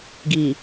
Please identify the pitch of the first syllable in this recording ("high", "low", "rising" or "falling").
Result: low